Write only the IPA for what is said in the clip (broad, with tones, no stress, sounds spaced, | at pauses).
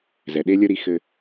z ɛ˨ ɗ e˦ lʲ ə˦ ɾ i˧ x ɘ˧